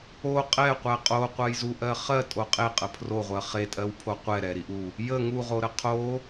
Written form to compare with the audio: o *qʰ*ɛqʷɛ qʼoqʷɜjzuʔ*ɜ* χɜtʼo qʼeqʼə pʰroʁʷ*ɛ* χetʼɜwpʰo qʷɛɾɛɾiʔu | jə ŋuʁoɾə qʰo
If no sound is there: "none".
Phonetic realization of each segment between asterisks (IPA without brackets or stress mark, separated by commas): qʼ, ɜ, ɜ